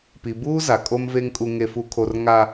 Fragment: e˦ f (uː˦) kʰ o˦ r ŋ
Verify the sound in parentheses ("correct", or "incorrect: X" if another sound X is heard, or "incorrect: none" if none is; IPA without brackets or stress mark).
incorrect: u˦